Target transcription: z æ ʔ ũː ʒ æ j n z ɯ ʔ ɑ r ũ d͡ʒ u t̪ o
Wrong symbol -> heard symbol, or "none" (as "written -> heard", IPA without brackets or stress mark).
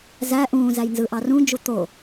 ʒ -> z